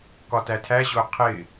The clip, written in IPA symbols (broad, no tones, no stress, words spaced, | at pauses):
kɒtætʰæ ʑʊqʰɪ